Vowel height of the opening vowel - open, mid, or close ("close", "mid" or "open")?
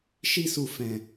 close